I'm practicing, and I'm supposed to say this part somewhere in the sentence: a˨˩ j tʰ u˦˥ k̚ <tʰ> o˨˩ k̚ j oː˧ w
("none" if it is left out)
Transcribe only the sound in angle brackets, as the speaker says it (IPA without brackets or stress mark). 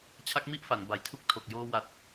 tʰ